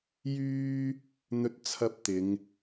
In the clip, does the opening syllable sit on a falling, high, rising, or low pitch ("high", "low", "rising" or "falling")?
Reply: high